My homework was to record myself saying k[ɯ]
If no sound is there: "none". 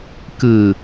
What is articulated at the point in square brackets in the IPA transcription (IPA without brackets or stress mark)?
ɯ